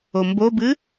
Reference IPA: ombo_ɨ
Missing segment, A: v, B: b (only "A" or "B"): B